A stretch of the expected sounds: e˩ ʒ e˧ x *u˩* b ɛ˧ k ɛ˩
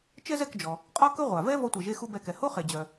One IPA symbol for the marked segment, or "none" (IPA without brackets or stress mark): u˧